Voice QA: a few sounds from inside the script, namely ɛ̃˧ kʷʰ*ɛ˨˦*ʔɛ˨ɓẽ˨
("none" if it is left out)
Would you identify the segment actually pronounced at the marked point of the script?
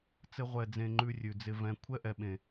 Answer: ɛ˦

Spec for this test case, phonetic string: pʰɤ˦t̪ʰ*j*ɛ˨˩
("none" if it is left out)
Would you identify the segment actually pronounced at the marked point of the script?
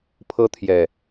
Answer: j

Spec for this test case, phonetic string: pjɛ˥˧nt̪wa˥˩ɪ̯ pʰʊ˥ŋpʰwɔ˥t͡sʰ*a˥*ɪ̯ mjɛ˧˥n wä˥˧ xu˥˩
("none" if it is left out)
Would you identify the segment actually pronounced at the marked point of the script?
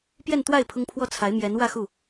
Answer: a˧˥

